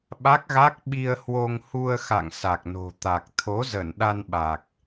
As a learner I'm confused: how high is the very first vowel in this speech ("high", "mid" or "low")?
low